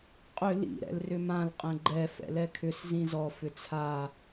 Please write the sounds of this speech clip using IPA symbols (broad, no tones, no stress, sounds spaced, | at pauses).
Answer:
qʼ ʏ l ḭ ɾ ɛ̰ l r ʏ m ã l qʼ ɛ̃ ɡ͡ǃ ɛ f ɛ̰ l ɛ kʰ ʏ s z ĩ z ɔ f ʏ t͡sʰ a